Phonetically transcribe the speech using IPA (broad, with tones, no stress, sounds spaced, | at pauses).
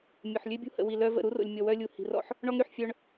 mʲ o˨ ħ lʲ ø˦ bʲ ṳ˦ h ə̰˨ w i˨ l œ˦ v ə̰˦˨ ɾ u˦ r o̰˨ lʲ mʲ ɔ˨ w œ˦ lʲ u˨ h i̤˨ r ɔ̰˦ ħ | ɳ ɔ˦ ŋ ɾ y˨ ħ fʲ œ˦ ɳ